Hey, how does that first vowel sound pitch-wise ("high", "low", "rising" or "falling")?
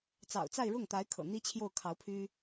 low